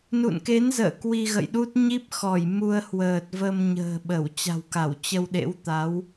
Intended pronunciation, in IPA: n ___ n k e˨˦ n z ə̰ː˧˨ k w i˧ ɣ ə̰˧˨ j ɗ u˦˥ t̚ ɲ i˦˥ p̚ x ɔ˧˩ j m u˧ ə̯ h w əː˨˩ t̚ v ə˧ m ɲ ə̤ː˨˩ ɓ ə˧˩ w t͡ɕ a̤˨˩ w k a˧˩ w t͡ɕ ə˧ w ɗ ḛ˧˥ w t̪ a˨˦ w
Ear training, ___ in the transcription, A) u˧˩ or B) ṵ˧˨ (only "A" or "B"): B